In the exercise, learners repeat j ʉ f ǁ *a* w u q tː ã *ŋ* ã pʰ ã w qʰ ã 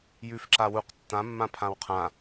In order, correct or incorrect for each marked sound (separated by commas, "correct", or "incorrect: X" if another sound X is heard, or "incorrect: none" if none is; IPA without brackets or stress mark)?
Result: correct, incorrect: mː